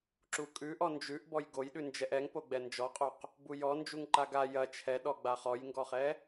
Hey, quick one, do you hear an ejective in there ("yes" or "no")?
yes